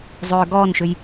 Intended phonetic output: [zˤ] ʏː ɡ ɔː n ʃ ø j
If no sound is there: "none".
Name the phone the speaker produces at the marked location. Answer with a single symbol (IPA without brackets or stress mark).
zˤ